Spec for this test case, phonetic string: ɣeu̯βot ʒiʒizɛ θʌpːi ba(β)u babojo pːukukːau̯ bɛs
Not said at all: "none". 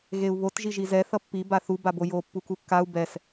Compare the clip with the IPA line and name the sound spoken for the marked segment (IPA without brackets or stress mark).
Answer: θ